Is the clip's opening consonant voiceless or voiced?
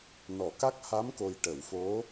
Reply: voiced